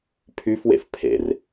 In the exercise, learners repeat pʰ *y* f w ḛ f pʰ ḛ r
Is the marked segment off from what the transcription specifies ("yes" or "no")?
no